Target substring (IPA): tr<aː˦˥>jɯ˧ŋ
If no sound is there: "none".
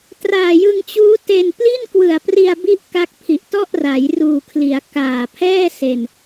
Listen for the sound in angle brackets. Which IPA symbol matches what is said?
aː˨˩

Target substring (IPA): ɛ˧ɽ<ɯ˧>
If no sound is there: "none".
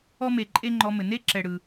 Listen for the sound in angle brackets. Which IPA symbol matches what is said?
ɯ˧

